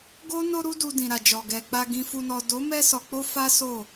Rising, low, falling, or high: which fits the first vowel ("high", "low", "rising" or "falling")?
high